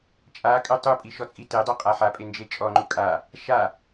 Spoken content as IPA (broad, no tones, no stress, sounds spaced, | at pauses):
t͡ʃʼ a kʼ ø tˤ u pʼ i ʃ ɔ t͡sʼ i t e dˤ ø qʼ a ħ a pʼ e n d͡ʒ e t͡ʃʼ ɔ ŋ͡ǃ u kʼ a | ʃ a